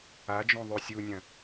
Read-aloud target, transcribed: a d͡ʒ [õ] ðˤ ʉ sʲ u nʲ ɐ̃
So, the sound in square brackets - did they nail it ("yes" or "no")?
yes